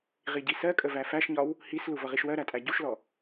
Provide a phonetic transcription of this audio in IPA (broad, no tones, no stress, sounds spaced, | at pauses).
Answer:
ʁ i ɟ i s ɜ kʼ ə v æ f æ ʃ ɲ ɒ w | h i s l u v ʌ ʁ i ʃ w ɜ ɾ æ tʼ æ ɟ u ʃ l ɔ